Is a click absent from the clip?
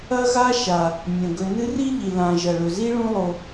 yes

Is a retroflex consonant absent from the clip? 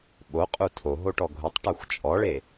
no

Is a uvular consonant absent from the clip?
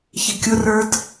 yes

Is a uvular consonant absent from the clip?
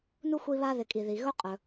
no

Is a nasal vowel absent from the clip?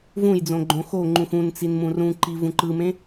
no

